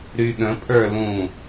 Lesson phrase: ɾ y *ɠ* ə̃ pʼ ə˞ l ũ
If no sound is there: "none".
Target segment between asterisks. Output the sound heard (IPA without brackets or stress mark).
ɠ